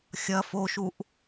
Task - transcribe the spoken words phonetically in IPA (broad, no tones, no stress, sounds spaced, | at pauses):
xʲ ɐ f o ʃ u ʔ